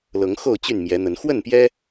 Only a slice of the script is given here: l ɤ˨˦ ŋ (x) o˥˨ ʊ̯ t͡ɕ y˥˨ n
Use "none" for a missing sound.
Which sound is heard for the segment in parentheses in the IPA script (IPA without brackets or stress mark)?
x